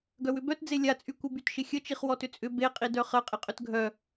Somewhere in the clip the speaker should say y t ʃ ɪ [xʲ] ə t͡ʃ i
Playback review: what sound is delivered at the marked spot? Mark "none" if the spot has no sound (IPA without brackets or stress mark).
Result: xʲ